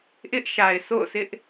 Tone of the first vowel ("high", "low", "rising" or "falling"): high